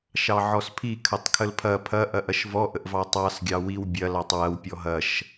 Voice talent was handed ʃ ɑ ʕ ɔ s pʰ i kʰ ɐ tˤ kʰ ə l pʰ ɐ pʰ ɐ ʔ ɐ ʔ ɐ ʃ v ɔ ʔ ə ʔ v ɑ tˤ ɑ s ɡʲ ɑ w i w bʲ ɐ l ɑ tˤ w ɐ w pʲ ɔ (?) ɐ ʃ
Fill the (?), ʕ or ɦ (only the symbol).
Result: ɦ